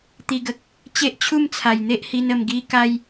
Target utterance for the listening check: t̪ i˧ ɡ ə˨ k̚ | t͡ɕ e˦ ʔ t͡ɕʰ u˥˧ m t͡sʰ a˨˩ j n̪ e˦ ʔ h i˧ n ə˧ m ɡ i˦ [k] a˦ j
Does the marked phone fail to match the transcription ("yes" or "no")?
no